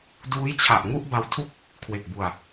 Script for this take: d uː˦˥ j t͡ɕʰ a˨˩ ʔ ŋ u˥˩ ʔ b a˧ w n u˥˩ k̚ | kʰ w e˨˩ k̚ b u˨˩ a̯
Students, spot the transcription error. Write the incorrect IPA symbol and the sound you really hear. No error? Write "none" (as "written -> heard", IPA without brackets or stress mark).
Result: n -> tʰ